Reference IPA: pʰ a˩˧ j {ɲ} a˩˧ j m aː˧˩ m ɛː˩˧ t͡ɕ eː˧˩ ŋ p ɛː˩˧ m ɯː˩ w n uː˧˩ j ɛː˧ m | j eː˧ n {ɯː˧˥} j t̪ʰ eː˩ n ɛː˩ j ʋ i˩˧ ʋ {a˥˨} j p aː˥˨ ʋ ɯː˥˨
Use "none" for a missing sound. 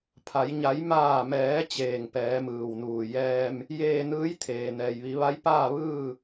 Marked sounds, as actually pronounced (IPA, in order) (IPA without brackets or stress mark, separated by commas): ɲ, ɯː˧˥, a˧˥